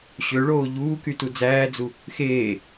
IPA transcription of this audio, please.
ɕ ø ɭ oː ʎ uː k y t u d͡z æː d͡z u | x eː

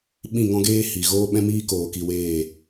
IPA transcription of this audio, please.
ɓ ĩ˦˨ ŋ ɔ̃˦ ɡ eː˦ h i˨ ɣ oː˦ ɓ ɛ̃˦ m iː˦ k oː˧ k i˧ w eː˦˨

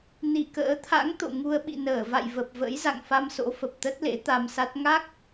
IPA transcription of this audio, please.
n i˧˩ k ə̰ː˧˥ t̪ʰ a̰˧˥ ŋ t̪ o̰˧˨ ŋ u˧ ə̯ ɓ ḭ˧˨ n əː˧˩ v a̰˧˨ j v ə˨˩ p̚ v ə̰˧˥ j z a̰˧˨ ŋ f a˧ m s o̰˧˥ f ə˨˩ p̚ t̪ ə˦˥ t̚ l ḛ˧˥ t̪ a˧ m s a˦˥ t̚ ŋ a˦˥ k̚

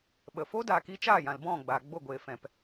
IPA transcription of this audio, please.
ɓ ə˨ f o˦ d aː˨ k i˧ t͡ʃ aː˦˨ j ã˨ l b ɔ̃˦˨ ɡ͡b aː˨ ɡ͡b o˦˨ ɡʷ eː˨ f ɛ̃˨ p

